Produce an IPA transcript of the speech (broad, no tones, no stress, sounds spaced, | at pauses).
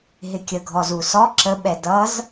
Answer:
ɦ ɪ kʲ ə ɡʱ ɔ z u s ɔ ǁ ə ɓ ɛ d ʌ z